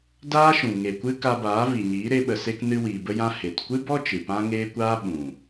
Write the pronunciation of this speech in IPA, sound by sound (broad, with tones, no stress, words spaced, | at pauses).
daː˦ʃũ˨ ŋe˨kʷɨ˦ ka˧baː˨˦vi˨ɲiː˨˦ ɾe˦ɓə˧se˦k nɨ˧wiː˨bə˧jã˧ he˨t kʷɨ˦bɔ˦ t͡ʃɨ˨pã˦ŋeː˦kʷaː˦ ɓũ˨